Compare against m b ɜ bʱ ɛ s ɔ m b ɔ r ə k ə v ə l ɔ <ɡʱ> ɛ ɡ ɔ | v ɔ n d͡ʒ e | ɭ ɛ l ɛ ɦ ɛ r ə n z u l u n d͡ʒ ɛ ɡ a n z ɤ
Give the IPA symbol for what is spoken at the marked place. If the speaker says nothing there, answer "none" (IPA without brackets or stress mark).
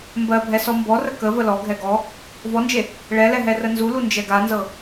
ɡʱ